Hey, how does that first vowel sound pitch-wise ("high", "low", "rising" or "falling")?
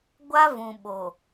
high